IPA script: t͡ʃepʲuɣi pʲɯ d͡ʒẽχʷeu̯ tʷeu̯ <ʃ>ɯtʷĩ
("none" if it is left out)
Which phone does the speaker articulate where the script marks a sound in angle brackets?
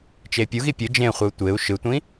ʃ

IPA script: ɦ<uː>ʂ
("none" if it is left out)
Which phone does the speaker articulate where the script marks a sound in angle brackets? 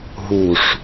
u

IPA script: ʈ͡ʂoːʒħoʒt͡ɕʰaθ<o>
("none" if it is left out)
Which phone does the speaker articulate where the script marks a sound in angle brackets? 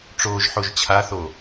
o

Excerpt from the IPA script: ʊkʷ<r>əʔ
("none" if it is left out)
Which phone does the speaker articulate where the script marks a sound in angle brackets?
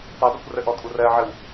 r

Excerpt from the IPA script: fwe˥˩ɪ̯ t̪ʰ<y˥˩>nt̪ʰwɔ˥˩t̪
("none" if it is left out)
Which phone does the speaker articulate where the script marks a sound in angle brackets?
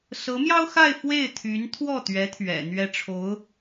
y˧˥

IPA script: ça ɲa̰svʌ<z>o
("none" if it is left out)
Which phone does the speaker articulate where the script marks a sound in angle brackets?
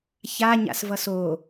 s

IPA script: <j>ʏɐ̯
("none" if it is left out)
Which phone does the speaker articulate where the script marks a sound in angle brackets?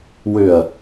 w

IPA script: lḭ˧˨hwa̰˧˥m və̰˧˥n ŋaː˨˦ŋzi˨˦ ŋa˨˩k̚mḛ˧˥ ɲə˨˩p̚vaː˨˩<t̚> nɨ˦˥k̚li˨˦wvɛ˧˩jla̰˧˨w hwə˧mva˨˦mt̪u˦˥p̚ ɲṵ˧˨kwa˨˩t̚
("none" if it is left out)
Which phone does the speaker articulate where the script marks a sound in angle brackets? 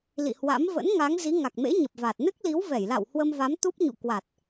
t̚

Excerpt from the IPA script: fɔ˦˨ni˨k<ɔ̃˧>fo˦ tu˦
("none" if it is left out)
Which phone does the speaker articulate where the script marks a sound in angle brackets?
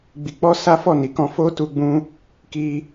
ɔ̃˧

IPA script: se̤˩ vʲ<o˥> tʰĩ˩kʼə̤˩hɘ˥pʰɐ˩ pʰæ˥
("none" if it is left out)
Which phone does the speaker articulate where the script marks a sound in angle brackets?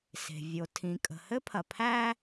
o˩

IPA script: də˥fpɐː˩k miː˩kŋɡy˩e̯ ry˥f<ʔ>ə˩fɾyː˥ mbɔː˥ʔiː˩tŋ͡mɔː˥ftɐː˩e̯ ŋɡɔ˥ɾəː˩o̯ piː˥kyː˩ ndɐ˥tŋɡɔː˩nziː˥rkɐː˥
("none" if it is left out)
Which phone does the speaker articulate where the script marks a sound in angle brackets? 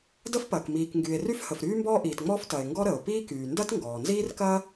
h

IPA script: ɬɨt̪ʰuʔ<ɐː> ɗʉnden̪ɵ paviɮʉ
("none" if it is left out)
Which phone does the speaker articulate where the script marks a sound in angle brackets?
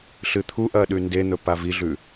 ɐː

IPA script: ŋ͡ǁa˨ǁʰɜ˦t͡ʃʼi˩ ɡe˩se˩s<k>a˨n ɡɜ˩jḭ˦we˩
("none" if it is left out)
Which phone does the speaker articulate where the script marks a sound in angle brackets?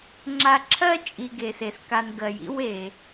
k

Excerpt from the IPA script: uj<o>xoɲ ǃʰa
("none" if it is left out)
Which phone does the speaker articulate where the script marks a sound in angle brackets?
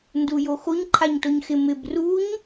o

